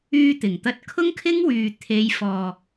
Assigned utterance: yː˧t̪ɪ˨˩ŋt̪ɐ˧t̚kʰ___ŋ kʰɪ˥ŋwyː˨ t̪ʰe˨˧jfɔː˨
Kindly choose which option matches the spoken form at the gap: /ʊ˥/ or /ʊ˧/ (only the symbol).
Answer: ʊ˥